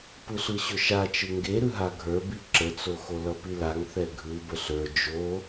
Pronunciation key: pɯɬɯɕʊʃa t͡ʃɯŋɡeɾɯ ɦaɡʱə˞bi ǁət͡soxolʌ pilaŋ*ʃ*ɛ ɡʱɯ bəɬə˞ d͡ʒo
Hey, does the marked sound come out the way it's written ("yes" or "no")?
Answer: no